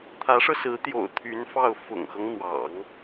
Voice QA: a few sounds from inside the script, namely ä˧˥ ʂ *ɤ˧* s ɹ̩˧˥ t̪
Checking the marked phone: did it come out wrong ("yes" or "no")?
no